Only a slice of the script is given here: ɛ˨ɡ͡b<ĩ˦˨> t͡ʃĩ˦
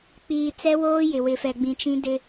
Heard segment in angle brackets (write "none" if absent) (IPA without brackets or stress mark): ĩ˨